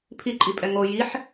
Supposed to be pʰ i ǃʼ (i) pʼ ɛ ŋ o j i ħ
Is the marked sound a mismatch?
no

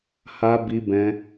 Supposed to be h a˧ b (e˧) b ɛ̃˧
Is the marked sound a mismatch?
yes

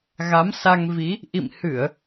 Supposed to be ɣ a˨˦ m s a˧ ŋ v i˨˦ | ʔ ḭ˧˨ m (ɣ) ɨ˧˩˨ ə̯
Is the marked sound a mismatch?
yes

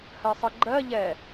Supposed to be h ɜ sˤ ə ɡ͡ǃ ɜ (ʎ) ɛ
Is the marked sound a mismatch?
no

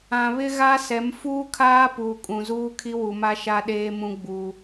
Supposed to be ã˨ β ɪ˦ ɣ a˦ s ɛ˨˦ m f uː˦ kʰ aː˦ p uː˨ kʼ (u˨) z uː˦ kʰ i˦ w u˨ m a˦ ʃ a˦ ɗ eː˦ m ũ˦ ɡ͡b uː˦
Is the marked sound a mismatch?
yes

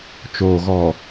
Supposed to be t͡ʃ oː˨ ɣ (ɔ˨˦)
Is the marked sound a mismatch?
yes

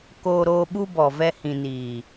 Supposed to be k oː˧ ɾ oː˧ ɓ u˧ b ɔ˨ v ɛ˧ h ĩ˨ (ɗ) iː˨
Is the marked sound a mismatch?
yes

